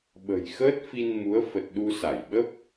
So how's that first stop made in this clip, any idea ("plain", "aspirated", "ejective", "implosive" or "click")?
implosive